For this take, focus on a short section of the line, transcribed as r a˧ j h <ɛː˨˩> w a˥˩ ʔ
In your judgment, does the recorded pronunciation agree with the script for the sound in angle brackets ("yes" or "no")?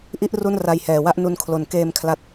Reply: yes